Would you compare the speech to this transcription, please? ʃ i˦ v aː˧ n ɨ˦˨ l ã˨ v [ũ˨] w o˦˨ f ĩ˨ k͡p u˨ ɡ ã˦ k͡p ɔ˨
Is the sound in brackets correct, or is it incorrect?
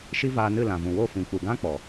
correct